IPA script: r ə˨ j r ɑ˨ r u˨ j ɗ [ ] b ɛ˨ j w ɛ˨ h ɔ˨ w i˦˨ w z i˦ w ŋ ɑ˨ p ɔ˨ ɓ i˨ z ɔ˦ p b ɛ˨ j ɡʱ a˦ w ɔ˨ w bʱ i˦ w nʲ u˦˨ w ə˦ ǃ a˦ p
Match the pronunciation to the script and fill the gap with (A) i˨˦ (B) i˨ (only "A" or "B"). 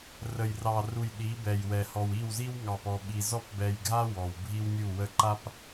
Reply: A